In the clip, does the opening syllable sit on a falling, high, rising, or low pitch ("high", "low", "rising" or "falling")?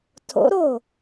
rising